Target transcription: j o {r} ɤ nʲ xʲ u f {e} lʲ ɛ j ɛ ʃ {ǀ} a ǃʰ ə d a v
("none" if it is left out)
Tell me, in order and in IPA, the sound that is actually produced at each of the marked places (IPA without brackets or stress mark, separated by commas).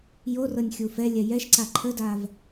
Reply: r, ɛ, ǀ